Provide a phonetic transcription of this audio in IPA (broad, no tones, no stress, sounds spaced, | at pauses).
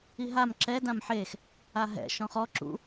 i ɦ a m ǁ ɛ d ã m ħ e x | a ɦ ɛ̰ ʃ ɔ̃ χ ɔ ǁ ṵ